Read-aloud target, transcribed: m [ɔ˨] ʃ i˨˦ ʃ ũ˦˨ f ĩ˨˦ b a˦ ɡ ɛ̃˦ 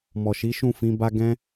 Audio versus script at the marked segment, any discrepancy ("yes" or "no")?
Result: no